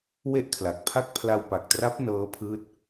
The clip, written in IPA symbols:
we˥˩ʔkʰla˨˩k̚pʰa˥˩k̚ pʰla˧wpa˨˩k̚tra˦˥p̚ nɤː˦˥pʰɯː˦˥t̚

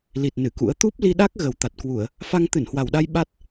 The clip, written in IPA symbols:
li˨˩t̚ nɨ˧˩kṵ˧˥ə̯ t̪u˦˥p̚ li˧ɗa˦˥k̚ ɣə˨˩w t̪a˨˩t̚kwu˧˩˨ə̯ | fa˧ŋt̪ɨ˧˩nhwa˨˩wɗa˧j ɓa˦˥t̚

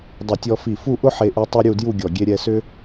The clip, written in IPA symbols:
dˤʊ˧˩tʲɔ˧fi˧˩ fu˥˧ʔʊ˥ħe˧ʔu˧ tˤɛ˥ ɾʲu˥˧dju˥˧ɡʲɔ˧˩ ɡʲe˧ɾʲɛ˧sʏ˥

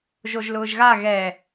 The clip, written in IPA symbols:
ʒoʒlʊːʒɣa ɣɛ

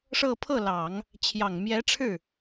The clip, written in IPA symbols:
ʂɤ˥˧ pʰɤ˥˩lɑ˨˩˦ŋ | t͡ɕʰjɑ˨˩ŋmjɛ˧˥ʈ͡ʂʰɻ̩˥˩

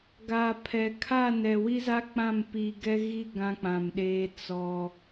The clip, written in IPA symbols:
ɡaː˨ pʰɛ˨ kʰa˦˨nɛ˨ wi˦za˦ k͡pã˦˨m pi˦ ɡɛ˦ɣi˦ ɡã˦k͡pã˨mɗeː˦ t͡sɔ˦

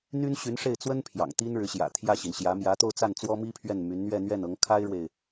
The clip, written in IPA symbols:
n̪y˥nɕy˧˥nʂe˥˩ɪ̯ t͡swə˥n pʰjɑ̰˨˩ŋt̪i˥nɻɻ̩˧˥ɕjä̰˨˩ t̪ʰjä˥˩ɕi˩nɕjä˧˥ mjä˧˥t̪o˥˧ʊ̯t͡sa˥˩n t͡swɔ˥mi˥pʰɥɛ˥˩n my˧˥nn̪ɥɛ˥˧ n̪ɥɛ˥˩nɤ˧˥ŋ kʰa˥ɪ̯ɻwe˨ɪ̯

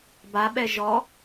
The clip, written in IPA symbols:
baɓɛ ʒɔ

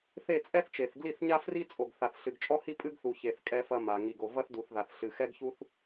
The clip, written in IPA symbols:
θe˦˨t͡sʼɛ˦θt͡ʃe˨θ ɡli˦˨θɲa˦ fri˦t͡sʼo˨ɡ θa˨θɬɨ˨ɡt͡ʃʼɔ˦hi˦ pʼɨ˦ɡθu˨çe˨θ kʼɛ˦fɐ˦ma˨ ŋi˨ɡo˨ vɐ˦θdu˨θða˨θ ɬɨ˨xɛ˦ɡçu˦θ

